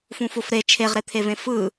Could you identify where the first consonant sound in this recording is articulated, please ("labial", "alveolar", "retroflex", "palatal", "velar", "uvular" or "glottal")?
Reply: labial